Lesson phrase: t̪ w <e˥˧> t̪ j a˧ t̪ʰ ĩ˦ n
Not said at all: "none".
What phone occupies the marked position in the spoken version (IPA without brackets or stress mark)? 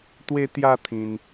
e˧